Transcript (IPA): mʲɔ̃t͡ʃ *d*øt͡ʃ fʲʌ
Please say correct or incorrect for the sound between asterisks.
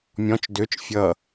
correct